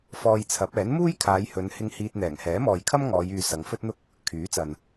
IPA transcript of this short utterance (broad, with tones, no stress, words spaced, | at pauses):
fɔː˧jt͡sʰɐ˨˥p̚ ɛː˨˥nmuː˥jkʰaː˨˧jhɵ˨˧n hɪ˧ŋ hiː˧t̚n̪ɛː˨˩ŋ hɛː˨˥mɔː˨jkʰɐ˥m ŋɔː˨˧jyː˨ sɐ˨˧ŋfɵ˥t̚n̪ʊ˥k̚ | kʰyː˨˥t͡sɐ˨n